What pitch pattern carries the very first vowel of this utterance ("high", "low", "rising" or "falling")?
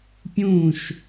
falling